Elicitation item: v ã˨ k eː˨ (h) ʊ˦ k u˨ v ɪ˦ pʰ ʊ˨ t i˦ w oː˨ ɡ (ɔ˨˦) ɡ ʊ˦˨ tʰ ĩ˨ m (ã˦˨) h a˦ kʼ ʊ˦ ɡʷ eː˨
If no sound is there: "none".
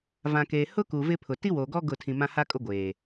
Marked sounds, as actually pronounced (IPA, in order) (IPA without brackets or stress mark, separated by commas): h, ɔ˦, ã˦